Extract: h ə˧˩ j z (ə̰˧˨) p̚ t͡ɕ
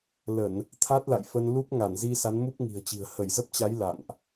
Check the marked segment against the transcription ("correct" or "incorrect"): incorrect